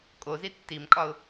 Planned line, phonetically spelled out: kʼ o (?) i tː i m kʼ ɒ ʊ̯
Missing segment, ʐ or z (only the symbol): z